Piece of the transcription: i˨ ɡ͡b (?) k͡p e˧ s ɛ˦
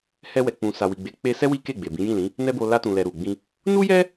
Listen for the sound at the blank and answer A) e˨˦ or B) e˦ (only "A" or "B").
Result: A